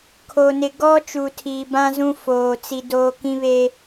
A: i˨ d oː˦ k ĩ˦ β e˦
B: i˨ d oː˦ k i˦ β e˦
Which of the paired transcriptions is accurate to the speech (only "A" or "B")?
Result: A